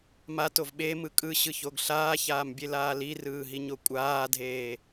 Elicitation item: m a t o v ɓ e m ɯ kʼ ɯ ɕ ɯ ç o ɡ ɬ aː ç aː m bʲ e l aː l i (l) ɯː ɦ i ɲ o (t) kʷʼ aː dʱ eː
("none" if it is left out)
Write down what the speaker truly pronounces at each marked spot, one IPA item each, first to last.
r, none

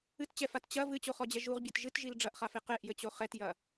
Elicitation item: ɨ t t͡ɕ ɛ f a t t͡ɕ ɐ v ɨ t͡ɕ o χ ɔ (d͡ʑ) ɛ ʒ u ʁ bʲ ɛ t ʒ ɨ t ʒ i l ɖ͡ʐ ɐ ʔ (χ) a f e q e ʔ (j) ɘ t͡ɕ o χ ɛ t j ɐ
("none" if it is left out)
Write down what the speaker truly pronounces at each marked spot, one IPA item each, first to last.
d͡ʑ, χ, j

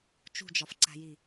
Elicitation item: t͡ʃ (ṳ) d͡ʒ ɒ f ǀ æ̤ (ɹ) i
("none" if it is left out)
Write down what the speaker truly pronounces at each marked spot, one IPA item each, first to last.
ṳ, j

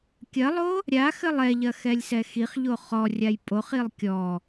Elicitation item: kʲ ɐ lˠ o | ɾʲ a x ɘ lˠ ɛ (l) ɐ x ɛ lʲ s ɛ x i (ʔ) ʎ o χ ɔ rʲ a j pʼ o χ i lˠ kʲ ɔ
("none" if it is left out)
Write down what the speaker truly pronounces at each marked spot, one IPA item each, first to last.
ʎ, χ

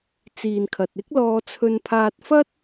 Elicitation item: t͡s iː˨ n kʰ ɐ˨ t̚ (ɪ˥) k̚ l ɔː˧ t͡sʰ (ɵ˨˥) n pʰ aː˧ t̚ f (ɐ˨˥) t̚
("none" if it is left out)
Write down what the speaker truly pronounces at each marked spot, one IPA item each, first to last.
ɪ˥, ɵ˧, ɐ˥

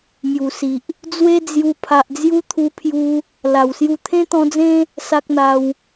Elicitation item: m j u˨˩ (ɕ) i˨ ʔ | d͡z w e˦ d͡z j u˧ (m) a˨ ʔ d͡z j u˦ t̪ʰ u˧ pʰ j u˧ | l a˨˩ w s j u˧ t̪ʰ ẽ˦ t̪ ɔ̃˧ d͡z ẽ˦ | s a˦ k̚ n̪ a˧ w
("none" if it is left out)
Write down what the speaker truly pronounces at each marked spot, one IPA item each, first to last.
s, pʰ

